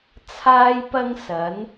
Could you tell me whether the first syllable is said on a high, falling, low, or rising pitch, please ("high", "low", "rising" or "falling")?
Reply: high